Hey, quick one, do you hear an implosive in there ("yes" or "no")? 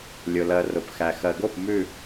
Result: no